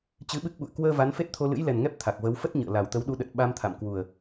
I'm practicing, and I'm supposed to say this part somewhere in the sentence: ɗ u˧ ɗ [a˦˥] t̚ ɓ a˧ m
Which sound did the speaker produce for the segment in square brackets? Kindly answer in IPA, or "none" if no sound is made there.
ə˦˥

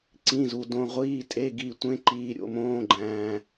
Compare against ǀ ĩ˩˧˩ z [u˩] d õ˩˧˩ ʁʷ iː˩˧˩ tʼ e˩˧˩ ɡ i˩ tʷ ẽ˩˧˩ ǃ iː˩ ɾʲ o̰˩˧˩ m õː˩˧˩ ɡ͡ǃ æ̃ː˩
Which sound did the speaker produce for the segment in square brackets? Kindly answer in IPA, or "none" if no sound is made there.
u˩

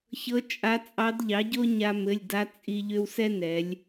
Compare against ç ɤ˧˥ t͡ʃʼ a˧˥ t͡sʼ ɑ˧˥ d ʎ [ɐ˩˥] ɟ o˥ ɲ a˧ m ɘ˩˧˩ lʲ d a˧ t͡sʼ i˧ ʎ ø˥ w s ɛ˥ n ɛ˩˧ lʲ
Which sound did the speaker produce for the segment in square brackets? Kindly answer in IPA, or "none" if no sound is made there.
ɑ˩˥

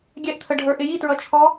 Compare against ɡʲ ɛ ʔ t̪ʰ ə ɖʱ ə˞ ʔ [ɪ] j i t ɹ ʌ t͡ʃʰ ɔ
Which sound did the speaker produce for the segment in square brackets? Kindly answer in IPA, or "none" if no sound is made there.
ɪ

